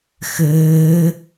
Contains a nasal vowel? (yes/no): no